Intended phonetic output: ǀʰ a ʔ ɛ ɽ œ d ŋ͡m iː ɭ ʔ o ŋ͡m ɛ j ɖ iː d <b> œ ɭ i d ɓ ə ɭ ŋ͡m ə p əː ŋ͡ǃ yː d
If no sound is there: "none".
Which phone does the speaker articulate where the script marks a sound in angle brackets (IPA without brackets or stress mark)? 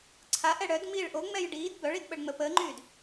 b